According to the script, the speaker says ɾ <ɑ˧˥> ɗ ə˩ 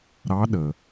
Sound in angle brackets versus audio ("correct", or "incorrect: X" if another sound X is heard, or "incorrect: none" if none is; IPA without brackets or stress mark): correct